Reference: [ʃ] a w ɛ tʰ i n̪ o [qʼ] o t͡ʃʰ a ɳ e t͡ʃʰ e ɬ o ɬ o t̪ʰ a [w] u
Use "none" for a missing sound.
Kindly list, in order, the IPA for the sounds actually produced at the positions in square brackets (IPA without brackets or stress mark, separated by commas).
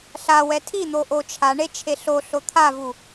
ɬ, ʔ, v